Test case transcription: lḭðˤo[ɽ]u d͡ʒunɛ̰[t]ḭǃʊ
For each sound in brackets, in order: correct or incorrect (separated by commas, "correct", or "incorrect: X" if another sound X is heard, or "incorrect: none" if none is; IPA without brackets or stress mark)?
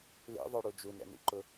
correct, incorrect: n